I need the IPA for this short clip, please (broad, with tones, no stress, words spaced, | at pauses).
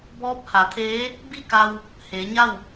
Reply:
bɔː˧˥p̚ha˩˧t̪ʰeː˧˥ | bi˥˨ka˧w | heː˩˧ɲa˥˨w